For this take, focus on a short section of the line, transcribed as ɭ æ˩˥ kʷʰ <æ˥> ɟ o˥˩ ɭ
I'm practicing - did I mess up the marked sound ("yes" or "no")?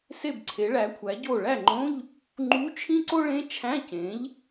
yes